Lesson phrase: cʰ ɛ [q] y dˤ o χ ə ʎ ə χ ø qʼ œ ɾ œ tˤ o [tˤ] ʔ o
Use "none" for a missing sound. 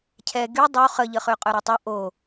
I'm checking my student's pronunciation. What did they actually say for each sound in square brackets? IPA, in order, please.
ɡ, none

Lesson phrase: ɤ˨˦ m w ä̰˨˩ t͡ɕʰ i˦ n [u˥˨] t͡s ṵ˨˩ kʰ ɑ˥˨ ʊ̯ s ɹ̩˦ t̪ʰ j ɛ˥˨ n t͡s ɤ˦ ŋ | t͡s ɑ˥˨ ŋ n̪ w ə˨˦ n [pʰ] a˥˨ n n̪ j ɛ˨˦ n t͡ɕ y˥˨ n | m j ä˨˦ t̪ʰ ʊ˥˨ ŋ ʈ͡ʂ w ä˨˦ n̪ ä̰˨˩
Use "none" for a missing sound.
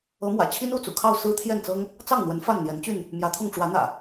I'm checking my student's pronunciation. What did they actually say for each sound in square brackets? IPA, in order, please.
u˥˨, f

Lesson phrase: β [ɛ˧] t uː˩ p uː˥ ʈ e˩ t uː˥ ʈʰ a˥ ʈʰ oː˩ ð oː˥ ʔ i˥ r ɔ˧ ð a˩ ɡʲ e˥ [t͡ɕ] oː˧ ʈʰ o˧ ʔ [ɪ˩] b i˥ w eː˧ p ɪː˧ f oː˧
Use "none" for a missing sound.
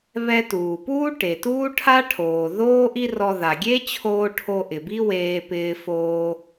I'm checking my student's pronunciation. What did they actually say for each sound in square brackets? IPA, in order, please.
ɛ˧, t͡ɕʰ, ɪ˩

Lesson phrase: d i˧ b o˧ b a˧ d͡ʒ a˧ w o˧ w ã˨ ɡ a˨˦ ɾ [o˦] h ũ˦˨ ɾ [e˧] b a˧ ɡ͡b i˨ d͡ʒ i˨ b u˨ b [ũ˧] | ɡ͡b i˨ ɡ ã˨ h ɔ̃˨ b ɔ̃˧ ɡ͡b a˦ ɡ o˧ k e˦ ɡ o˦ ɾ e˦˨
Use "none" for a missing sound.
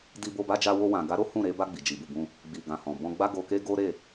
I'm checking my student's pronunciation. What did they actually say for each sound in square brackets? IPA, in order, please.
o˦, e˧, ũ˧

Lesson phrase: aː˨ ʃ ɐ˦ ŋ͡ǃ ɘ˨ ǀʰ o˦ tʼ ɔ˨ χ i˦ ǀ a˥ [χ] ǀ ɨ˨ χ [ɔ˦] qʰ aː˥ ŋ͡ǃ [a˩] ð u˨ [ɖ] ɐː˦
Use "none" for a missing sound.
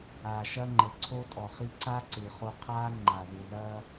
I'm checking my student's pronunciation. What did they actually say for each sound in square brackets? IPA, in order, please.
none, o˦, a˨, ð

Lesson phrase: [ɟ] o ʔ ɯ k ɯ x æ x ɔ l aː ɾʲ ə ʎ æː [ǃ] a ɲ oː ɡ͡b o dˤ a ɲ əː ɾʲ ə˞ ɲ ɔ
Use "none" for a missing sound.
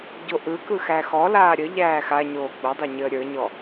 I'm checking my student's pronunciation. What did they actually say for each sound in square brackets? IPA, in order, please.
ɟ, x

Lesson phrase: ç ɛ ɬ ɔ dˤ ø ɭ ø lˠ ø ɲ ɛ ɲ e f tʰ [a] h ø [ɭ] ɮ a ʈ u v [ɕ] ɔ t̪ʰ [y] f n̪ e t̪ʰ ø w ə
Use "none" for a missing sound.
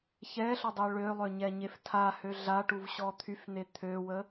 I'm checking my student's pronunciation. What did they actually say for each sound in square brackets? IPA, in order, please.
a, none, ɕ, y

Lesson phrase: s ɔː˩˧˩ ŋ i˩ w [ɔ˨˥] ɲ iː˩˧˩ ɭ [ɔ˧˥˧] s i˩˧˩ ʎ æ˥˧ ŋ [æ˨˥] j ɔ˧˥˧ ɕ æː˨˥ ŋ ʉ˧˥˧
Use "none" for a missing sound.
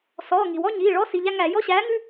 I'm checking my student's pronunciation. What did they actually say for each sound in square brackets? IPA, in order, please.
ɔ˧˥˧, ɔ˧˥˧, æ˧˩˧

